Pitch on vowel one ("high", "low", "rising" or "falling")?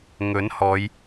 rising